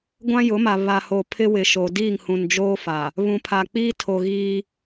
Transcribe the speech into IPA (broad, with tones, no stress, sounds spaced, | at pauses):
ɡʷ ã˦ j ʊ˨˦ m a˨ β a˨ h o˨ pʰ ɪ˦ w ɪ˨ ʃ o˨ d iː˦˨ ŋ h ũ˨ n d͡ʒ oː˦ f a˨ | β ũ˨ pʰ a˨ k͡p iː˦ tʰ o˨ ɣ iː˦